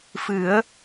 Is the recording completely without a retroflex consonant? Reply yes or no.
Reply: yes